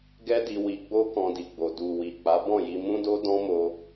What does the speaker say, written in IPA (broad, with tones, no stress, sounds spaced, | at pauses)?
ɡ ɛ˦ d i˧ w i˧ ɡ͡b o˦ k ɔ̃˧ d i˨ ɡ͡b o˨ d u˨ w i˨ k͡p a˨˦ b ɔ̃˦˨ j i˧ m ũ˦ d o˦ d ɔ̃˦ m o˧